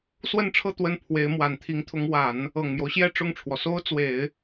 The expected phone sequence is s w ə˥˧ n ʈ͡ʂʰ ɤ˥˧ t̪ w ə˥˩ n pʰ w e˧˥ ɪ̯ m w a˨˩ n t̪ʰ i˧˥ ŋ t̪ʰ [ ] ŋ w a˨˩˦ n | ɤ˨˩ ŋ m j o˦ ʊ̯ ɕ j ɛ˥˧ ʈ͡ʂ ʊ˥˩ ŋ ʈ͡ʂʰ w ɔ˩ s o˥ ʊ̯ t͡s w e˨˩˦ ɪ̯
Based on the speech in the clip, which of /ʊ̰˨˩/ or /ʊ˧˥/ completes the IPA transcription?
ʊ˧˥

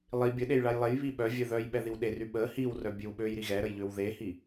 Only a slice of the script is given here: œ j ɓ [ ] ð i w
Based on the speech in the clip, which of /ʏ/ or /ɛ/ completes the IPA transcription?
ɛ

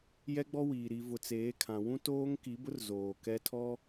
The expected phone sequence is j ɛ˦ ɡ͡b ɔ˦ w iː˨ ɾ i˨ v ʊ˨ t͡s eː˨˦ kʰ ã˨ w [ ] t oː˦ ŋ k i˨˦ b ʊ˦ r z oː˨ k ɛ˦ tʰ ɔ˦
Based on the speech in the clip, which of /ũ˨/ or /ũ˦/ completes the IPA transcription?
ũ˦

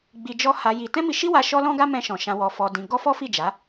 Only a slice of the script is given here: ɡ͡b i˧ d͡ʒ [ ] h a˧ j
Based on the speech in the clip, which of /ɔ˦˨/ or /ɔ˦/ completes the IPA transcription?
ɔ˦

